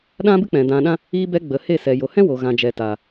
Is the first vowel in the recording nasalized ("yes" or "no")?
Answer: yes